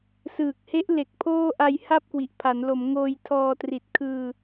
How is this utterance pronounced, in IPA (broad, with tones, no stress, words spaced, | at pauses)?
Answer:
sɯː˨˩k̚he˦˥ʔle˨˩k̚ pʰoː˥˩ʔa˧j ha˥˩p̚kwi˨˩ʔpʰa˩˦nlo˩˦m ŋoː˧jtʰɔː˧tri˨˩t̚kʰɯː˧